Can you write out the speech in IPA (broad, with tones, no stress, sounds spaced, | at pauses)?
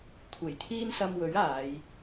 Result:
kʷʰ e˨˩ j t̪ʰ iː˥ n s ɐ˧ m w ɵ˨˥ ɥ aː˨˧ j